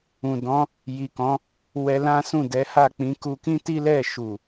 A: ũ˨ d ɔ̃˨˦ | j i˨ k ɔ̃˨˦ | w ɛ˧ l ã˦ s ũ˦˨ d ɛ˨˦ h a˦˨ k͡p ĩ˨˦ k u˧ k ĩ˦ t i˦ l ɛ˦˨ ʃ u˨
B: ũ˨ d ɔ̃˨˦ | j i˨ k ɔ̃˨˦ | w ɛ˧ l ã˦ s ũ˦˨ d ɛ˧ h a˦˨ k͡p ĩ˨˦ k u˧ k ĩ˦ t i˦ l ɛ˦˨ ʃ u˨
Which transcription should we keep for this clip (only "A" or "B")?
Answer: A